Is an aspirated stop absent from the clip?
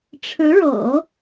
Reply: no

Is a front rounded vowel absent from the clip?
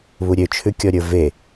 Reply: no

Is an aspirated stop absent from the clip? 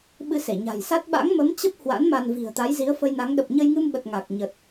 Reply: yes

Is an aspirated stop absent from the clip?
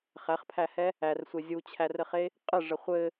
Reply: no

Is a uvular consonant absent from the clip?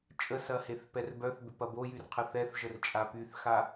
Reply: no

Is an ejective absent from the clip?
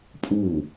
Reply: no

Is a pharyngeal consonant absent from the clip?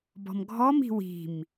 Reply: yes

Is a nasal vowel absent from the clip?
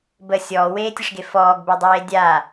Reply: yes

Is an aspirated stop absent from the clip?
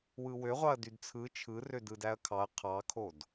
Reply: no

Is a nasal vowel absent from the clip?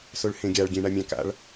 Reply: no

